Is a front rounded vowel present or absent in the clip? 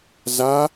absent